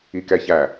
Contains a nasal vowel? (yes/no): no